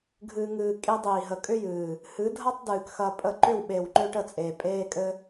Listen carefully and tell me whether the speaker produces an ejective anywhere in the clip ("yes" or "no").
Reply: yes